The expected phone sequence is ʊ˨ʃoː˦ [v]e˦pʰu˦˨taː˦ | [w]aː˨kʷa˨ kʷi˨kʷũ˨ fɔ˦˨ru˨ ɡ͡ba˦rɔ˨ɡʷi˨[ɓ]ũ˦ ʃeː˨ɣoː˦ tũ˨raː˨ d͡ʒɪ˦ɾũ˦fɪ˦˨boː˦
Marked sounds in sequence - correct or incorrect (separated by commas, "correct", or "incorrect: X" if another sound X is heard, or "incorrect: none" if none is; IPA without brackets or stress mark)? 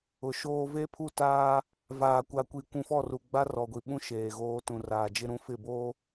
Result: correct, incorrect: v, correct